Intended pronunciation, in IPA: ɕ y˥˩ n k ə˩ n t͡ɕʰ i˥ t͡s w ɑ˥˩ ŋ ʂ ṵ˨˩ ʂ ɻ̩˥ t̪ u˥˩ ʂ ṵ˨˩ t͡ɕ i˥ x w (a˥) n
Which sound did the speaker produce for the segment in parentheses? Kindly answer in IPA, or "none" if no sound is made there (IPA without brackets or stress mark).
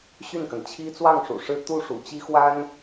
a˥